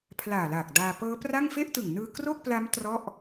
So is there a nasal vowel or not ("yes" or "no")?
no